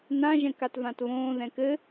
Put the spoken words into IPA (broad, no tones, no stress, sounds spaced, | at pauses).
n ã ʒ ɛ̃ k a t v ã t β õː ð ɛ̃ k ɘ